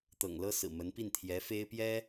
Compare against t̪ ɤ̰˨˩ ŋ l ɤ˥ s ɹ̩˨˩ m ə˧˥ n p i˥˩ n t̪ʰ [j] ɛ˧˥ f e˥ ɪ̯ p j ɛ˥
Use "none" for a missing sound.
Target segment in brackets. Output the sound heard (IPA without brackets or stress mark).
j